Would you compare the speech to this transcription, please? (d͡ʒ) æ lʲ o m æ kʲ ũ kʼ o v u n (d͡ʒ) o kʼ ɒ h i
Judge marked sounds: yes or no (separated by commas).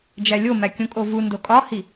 yes, no